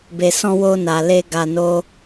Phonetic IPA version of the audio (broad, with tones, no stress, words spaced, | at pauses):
be˨sɔ̃˧wo˧ na˨ le˧ ɡa˧no˦